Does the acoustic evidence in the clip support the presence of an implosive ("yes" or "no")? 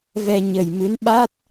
yes